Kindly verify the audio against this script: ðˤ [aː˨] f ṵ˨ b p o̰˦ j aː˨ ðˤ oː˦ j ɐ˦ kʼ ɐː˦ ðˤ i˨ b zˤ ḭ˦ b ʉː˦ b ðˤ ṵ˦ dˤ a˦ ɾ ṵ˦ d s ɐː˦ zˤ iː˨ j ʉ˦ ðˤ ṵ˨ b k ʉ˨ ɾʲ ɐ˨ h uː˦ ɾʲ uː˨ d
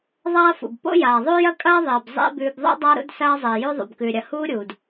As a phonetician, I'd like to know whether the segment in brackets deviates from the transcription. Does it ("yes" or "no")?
yes